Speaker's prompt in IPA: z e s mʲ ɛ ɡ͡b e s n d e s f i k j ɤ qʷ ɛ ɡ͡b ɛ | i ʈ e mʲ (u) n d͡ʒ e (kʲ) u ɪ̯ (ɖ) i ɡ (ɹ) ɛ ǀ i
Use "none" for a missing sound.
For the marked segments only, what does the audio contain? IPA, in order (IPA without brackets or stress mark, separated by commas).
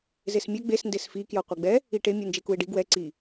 u, k, ɖ, w